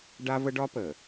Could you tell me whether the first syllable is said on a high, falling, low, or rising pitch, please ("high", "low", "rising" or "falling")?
high